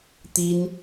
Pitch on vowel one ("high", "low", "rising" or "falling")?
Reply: high